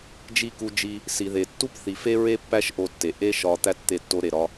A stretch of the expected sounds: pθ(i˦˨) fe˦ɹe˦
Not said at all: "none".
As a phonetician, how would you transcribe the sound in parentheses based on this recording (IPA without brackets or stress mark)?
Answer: i˨